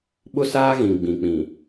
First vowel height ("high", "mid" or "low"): high